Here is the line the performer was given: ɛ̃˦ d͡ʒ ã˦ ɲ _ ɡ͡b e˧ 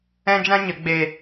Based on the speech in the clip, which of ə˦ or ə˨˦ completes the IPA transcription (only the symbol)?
ə˨˦